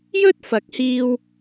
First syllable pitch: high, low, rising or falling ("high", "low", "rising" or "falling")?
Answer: high